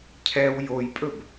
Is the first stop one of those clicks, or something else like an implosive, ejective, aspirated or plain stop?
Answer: aspirated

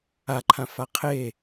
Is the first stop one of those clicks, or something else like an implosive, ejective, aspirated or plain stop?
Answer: click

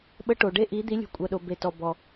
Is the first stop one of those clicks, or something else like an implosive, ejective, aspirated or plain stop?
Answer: implosive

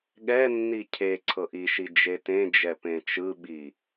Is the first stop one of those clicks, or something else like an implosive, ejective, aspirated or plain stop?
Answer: implosive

